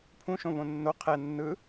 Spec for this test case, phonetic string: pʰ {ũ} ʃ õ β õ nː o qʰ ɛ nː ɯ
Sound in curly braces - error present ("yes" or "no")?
no